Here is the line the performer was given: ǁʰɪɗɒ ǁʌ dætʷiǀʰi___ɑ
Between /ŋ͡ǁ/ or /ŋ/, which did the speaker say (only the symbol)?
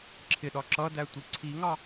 ŋ